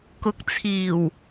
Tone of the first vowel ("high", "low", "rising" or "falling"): rising